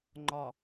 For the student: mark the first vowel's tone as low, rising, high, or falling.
low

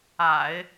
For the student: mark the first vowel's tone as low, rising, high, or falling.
low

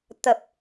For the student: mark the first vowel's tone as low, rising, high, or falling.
low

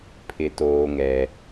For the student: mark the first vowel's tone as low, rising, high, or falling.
low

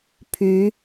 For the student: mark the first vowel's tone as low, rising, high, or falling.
rising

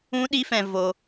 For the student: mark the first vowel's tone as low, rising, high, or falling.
high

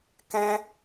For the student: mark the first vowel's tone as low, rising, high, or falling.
high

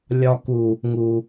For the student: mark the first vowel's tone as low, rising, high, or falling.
low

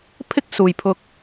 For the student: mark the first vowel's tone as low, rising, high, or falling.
high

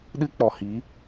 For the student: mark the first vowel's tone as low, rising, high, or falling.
high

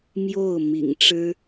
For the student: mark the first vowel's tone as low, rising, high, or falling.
falling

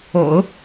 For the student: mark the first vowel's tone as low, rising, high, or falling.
low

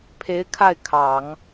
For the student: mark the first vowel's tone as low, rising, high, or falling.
rising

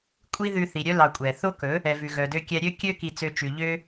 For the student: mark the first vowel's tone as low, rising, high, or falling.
high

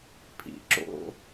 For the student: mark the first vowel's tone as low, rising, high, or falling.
low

